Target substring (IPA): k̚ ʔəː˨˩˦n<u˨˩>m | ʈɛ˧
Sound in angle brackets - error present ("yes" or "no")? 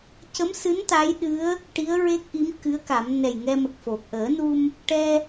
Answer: yes